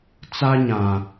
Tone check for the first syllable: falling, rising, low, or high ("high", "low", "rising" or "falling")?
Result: high